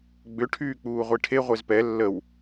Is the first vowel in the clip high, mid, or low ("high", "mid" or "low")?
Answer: high